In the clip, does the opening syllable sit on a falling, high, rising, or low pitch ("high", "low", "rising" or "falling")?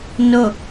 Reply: falling